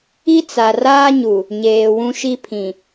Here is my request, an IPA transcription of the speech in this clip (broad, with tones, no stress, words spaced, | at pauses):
i˦t͡sa˨raː˦ɲu˨ | ɲeː˨ wũ˦ʃi˦pʰĩ˨